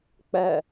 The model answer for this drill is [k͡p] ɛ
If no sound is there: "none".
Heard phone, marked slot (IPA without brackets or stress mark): k͡p